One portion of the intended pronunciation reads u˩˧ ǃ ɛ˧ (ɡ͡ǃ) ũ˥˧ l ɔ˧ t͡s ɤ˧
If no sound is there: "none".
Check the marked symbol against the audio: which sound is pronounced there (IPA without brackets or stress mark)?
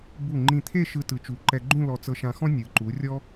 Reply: ɡ͡ǃ